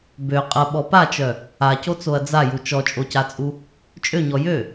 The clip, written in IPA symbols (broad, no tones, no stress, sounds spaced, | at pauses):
b ø qʼ ɐ ɓ ɔ p a t͡ʃ œ | a c o t͡s o ɐ̯ d͡z a j u t͡ʃ ɔ t͡ʃʼ o c a t͡sʼ u | t͡ʃʼ ø ɲ ɔ j ø